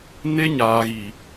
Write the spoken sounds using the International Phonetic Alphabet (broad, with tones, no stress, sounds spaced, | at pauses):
n e˦ ɲ aː˨ ɣ i˨